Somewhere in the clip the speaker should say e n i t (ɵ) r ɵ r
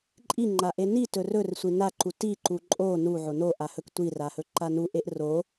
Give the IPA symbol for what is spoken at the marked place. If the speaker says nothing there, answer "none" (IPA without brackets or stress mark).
ɵ